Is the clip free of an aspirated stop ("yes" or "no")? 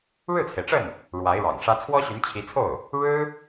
no